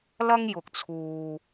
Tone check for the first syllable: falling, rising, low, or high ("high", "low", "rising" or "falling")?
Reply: high